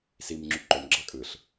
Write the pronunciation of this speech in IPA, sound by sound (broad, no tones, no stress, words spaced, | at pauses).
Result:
simŋ͡ǁy ǃomɡ͡ǁɑ kʼɯɬ